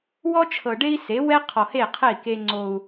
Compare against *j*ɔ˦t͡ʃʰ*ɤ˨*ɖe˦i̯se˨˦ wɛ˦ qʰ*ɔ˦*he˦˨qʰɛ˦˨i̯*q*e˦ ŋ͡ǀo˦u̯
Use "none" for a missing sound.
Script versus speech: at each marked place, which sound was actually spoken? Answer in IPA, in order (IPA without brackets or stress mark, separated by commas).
w, ɤ˨, ɔ˨, k